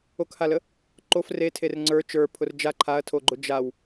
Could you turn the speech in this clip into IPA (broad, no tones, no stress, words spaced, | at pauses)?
okhalə | ǃof retʰer ŋ͡ǀə˞ t͡ʃə˞pʰʊr d͡ʒa ǃʰaɐ̯tʰoɡ͡ǃʊ d͡ʒaw